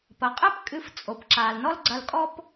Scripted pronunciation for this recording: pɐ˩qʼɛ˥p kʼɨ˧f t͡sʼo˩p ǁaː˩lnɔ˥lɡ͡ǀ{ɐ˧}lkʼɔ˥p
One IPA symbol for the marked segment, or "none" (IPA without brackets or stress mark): ɐ˧